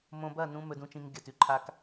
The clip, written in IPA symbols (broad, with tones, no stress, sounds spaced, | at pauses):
m õ˧ b ɐ˦˨ n ũ˧ m ɵ˧ d ũ˧ t͡ʃ ĩ˧ ŋ ɡʲ ɐ˨ t ʉ˨ ǃʰ a˧ k